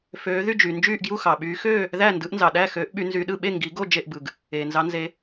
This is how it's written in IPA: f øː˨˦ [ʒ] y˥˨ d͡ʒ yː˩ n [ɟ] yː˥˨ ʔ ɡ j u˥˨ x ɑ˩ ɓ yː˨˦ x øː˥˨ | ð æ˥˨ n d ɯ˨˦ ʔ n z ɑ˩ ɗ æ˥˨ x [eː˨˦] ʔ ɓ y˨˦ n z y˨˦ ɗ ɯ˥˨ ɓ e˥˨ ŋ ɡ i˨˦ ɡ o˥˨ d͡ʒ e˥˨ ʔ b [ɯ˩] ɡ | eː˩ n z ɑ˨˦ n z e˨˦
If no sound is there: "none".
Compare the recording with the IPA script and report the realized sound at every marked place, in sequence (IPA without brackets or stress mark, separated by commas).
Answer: ð, d͡ʒ, øː˨˦, ɯ˩